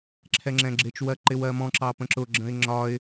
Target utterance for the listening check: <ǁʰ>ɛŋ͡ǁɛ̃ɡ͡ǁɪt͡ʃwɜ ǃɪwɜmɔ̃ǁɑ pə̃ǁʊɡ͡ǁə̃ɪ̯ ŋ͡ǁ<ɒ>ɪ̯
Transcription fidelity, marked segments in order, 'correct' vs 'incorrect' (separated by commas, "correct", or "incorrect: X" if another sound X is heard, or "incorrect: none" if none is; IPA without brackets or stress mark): correct, correct